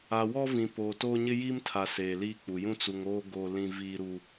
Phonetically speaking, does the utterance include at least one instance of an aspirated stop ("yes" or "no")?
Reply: yes